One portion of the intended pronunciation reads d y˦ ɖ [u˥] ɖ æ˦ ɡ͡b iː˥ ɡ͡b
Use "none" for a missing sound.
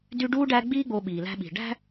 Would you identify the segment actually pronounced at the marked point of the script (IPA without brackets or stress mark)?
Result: uː˥